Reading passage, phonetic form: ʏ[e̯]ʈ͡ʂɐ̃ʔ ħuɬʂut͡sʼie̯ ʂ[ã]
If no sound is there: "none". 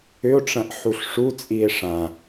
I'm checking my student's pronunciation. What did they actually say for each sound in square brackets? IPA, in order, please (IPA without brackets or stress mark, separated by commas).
o̯, ã